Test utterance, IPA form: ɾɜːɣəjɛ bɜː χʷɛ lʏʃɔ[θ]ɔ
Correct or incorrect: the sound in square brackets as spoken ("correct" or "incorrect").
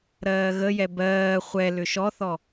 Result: correct